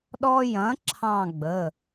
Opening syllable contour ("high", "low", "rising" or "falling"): high